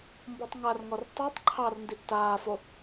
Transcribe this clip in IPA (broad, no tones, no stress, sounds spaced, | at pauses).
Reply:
m b ɔ tˤ ŋ a r ŋ ɔ r tˤ ʉ tˤ ǃʰ ɑ r n d i tː aː f o